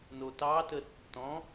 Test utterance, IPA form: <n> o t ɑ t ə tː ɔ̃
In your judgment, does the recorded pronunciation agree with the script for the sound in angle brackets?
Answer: yes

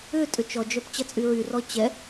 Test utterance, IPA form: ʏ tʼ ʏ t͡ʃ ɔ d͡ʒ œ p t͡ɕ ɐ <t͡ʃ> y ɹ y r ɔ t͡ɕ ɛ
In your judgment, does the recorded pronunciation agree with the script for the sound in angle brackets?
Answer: no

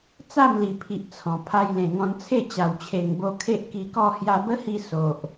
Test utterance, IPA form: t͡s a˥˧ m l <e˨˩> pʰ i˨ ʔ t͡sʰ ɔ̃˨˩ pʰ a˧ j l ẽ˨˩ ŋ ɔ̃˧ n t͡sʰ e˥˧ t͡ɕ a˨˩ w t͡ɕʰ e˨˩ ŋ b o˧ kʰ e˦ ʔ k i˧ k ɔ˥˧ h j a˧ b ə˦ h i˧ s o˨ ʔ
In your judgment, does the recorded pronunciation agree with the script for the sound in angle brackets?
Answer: no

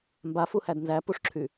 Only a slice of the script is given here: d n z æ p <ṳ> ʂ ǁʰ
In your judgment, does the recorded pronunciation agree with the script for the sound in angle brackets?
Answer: no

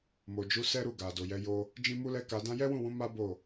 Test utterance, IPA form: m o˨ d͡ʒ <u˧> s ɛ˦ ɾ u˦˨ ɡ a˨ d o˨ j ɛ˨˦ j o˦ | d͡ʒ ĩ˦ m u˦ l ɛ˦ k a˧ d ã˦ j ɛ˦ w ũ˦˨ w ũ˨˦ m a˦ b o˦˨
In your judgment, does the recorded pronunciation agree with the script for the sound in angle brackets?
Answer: no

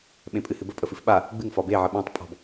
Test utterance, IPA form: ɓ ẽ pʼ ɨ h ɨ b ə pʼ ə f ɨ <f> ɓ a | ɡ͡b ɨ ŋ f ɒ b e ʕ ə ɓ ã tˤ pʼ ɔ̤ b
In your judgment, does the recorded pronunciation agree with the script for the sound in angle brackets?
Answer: yes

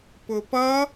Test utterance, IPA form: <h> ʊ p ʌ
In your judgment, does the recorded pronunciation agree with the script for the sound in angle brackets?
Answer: no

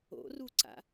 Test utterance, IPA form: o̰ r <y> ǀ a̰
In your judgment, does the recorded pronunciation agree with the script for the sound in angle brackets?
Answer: no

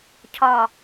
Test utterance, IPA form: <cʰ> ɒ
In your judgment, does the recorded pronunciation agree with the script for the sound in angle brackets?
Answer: yes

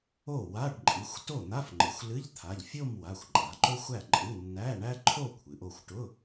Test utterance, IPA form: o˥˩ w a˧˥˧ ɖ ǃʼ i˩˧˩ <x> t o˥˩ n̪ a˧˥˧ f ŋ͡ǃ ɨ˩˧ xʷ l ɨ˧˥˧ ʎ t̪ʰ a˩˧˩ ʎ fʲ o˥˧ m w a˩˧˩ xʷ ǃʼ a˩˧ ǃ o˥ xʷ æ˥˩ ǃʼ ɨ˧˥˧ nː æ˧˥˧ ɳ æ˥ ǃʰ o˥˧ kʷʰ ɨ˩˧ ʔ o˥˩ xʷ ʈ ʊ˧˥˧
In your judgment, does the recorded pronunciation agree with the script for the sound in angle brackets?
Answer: no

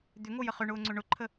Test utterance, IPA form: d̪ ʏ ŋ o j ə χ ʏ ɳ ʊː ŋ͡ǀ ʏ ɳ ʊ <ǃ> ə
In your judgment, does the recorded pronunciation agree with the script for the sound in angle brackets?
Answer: no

